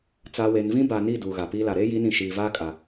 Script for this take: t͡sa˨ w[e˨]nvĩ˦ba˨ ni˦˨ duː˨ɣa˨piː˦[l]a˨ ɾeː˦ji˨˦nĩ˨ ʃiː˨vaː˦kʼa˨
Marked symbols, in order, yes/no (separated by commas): yes, yes